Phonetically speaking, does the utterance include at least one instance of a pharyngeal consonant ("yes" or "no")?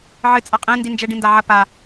yes